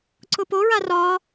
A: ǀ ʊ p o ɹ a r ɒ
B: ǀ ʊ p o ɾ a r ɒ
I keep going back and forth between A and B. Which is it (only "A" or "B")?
A